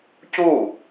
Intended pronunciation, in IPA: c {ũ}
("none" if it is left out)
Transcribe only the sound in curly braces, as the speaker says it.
u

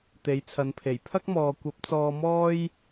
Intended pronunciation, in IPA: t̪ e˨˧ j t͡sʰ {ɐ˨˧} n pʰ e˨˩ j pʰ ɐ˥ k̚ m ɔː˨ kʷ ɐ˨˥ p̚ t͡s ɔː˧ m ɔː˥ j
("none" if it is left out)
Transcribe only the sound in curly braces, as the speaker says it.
ɐ˨˧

